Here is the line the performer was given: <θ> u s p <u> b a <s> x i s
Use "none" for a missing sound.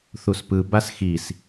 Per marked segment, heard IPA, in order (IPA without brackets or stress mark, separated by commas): θ, ɯ, s